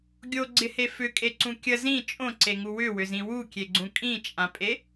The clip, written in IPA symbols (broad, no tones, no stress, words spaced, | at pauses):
ɡʲoɡ͡ǀɪhe fʏkʼeǀũ kʲə zĩ t͡ʃʼõǀeŋu wʏwʏzĩ wukʲeɡ͡ǀũ kʼĩt͡ʃʼãpʼe